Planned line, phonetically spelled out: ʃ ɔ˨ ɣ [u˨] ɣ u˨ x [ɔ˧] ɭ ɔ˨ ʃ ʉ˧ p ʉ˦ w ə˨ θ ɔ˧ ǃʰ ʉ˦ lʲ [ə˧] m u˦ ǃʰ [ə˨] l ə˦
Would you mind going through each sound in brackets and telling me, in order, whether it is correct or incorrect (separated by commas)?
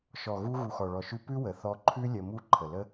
incorrect, incorrect, correct, correct